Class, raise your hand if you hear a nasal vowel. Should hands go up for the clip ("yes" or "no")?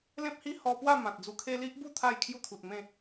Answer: yes